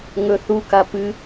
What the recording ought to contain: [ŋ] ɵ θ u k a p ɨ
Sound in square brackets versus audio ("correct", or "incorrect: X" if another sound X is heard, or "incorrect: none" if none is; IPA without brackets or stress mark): correct